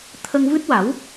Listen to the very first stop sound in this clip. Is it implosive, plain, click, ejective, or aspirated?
aspirated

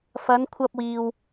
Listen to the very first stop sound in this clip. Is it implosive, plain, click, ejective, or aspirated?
aspirated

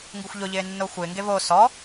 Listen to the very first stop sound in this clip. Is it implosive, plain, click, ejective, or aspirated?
plain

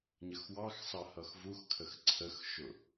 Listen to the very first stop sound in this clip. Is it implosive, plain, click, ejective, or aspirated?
aspirated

